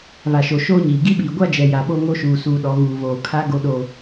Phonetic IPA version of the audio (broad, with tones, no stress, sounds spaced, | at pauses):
β a˨ ʃ o˨ ʃ oː˦ ɲ iː˨ ɡ i˦ ɓ iː˨ ɡʷ a˦ d͡ʒ ɛ˨ j a˨ ɓ o˦ ŋ o˦ ʃ uː˨ s uː˨ ɗ ɔ˨ ɣ uː˨ β oː˨ kʰ a˦ ɡ o˦ ɗ o˦